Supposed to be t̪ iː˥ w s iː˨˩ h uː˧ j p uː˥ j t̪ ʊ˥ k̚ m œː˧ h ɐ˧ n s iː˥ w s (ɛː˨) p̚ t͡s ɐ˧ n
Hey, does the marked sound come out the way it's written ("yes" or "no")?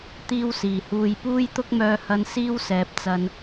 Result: yes